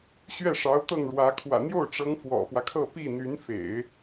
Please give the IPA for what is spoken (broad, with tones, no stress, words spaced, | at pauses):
ɕɥɛ˥˩ʂɑ˧˥ʊ̯ t̪ɤ˥˩ŋɻwä˧˥kʰwä̰˨˩ n̪jo˥˩ʊ̯ʈ͡ʂɤ˧˥ŋ fwɔ̰˨˩fwä˦kʰɤ˥˧ pi˥˩n̪y˧˥n fḛ˨˩˦ɪ̯